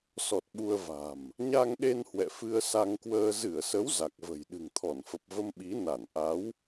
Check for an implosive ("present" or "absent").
present